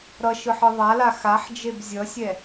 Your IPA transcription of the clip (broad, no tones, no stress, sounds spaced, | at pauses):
ɾ ʌ ʃ ɯ ħ ɯ ðˤ a l a x a ħ d͡ʒ e b zʲ ʌ sʲ ɛ